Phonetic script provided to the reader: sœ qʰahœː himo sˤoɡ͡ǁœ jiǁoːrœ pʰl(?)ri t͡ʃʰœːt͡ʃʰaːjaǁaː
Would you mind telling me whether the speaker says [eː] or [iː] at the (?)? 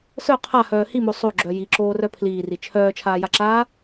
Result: iː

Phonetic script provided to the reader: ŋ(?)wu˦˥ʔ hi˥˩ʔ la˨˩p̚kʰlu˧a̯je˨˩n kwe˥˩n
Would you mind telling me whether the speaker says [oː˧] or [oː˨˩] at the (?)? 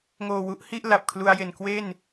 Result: oː˨˩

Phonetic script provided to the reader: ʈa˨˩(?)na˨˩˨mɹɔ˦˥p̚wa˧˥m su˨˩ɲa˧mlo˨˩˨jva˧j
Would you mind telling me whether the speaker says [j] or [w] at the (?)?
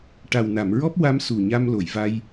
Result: w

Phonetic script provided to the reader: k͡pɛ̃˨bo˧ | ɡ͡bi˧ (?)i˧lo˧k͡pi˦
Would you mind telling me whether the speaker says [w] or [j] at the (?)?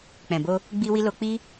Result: w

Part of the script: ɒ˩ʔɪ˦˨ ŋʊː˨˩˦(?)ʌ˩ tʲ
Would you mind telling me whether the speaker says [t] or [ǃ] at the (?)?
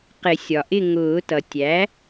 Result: t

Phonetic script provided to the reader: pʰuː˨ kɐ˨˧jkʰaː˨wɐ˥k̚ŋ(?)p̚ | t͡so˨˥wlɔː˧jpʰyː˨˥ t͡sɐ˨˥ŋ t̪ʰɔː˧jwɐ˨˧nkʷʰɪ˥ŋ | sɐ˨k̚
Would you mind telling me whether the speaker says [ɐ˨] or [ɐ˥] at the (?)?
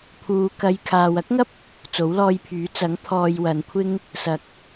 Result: ɐ˥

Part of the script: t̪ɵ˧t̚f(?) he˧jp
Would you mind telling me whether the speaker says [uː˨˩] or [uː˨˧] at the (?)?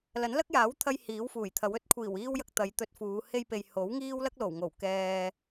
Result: uː˨˧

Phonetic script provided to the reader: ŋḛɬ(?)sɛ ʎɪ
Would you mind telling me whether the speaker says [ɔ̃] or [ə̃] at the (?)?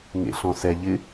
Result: ɔ̃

